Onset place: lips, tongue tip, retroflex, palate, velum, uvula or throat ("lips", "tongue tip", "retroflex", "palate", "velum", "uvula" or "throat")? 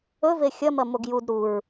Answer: lips